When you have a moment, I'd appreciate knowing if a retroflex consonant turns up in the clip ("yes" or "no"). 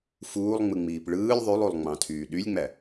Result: yes